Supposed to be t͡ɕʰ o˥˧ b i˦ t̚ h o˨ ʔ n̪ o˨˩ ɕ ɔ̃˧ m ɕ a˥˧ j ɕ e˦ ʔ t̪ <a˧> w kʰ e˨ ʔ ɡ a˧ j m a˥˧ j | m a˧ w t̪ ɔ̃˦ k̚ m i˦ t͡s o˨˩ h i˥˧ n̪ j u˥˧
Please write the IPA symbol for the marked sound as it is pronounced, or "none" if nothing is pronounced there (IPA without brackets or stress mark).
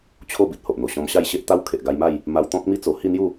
a˦